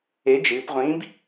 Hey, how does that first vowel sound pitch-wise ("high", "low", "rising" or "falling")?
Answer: rising